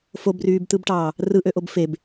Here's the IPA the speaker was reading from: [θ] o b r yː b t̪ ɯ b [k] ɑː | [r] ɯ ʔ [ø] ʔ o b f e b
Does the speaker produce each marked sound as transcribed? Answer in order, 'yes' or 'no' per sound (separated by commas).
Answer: no, no, yes, yes